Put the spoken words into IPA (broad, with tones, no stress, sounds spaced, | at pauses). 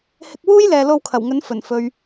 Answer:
h ɪ˧ k̚ w uː˥ j l ɛː˨ l o˧ w kʰ ɐ˨˩ w ŋ ɵ˨˥ n f ɵ˨˩ n f ɵ˨ ɥ